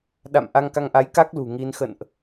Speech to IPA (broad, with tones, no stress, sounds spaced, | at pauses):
ɗ a̰˧˨ m ʔ a˧ ŋ k a˧ ŋ ʔ a˨˦ j k a˦˥ k̚ l ṳ˨˩ ŋ i˧ n x ə̰˧˨ n ʔ